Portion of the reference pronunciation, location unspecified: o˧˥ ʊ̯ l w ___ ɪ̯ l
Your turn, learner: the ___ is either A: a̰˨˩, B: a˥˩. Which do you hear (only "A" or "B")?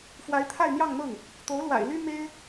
A